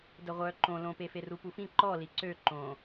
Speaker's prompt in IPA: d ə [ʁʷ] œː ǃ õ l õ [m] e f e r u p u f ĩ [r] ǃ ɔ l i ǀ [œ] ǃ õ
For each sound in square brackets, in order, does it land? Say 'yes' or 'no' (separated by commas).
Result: yes, no, no, no